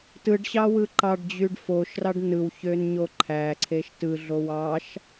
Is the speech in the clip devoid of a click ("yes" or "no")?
no